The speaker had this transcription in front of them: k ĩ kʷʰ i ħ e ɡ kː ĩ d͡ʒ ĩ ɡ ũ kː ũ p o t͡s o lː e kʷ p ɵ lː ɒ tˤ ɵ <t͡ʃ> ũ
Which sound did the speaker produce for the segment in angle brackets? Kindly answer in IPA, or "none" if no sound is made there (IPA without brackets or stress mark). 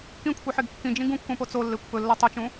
t͡ʃ